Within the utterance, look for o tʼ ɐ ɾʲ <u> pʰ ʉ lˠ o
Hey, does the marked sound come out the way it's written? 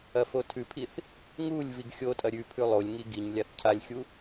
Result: no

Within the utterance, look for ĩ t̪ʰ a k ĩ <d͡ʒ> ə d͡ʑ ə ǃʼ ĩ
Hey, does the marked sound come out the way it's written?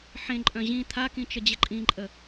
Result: no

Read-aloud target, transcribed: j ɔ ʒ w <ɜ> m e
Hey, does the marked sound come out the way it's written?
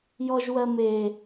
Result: yes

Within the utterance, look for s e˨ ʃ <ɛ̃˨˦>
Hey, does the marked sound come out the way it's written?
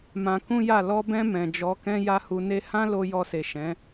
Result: yes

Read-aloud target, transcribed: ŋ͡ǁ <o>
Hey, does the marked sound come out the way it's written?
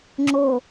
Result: yes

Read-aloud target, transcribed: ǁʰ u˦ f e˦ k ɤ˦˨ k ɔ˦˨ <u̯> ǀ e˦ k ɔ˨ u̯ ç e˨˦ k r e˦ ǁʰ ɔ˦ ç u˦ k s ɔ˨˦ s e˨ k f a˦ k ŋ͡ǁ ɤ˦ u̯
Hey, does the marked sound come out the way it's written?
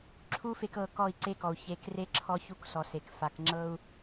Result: no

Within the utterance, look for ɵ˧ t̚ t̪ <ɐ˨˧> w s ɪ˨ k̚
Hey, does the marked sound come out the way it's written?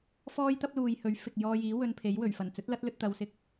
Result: yes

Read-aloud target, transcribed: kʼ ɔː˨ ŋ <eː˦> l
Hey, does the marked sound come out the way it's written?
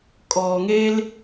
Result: no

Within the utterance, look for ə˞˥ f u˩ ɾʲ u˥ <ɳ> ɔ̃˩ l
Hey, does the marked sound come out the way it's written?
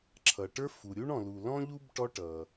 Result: yes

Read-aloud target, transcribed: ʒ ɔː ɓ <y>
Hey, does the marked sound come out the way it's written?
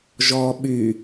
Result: yes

